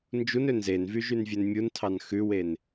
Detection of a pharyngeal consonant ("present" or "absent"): absent